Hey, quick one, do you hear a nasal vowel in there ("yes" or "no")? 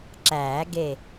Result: no